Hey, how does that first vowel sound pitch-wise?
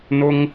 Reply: high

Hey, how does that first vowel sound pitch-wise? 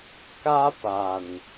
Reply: high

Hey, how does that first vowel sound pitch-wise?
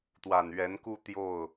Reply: low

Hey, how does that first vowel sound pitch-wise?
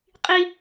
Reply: high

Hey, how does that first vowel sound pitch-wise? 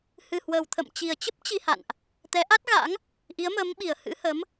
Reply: low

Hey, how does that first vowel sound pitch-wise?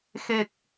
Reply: low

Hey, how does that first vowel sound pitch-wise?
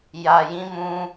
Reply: low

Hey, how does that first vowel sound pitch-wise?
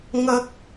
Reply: high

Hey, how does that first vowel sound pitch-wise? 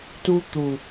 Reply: high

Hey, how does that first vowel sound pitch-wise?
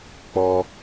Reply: high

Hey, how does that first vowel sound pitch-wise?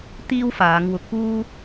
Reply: high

